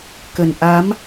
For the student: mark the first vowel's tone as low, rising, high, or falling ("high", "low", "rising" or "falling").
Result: low